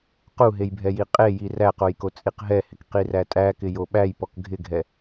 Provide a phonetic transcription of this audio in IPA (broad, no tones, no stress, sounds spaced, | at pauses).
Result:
q u ɦ e j bʱ ɛ j i qʼ e j i r æ q o j k o t͡sʼ i q ɦ ɛ h ɪ k q i r æ tʼ æ k ɪ j o ɓ æ j p ɔ k ɡʱ ɪ ɡʱ ɛ